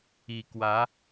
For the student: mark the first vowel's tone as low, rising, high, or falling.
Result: low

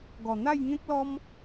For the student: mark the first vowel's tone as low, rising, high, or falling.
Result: low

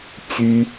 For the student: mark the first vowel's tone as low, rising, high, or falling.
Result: high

